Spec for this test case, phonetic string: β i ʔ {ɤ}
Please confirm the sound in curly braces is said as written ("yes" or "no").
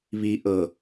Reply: yes